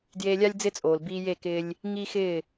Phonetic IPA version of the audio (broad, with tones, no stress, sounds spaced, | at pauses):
d j eː˧ lʲ a˦ lʲ d͡z ɪ˦ t͡sʼ oː˨ l b iː˧ j e˦˨ k ɪː˧ lʲ | ŋ iː˦ x ɪː˦˨